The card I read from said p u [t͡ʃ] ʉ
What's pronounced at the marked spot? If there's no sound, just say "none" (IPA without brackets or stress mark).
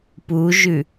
ʒ